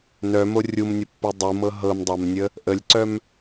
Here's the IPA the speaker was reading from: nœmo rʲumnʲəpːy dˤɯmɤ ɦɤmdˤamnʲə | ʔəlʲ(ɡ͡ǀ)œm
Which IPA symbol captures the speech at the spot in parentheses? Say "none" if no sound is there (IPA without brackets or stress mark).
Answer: ǀ